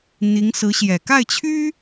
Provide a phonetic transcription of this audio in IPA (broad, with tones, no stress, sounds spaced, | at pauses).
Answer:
n̪ i˧˥ ŋ s ɹ̩˧˥ ɕ j ɛ˨˩ k a˥˩ ɪ̯ t͡ɕʰ y˥